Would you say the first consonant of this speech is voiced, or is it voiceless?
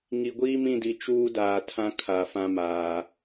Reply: voiced